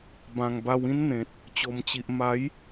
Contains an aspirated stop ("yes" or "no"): no